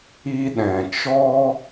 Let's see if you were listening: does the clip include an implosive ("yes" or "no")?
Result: yes